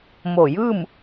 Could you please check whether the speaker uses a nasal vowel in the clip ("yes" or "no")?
no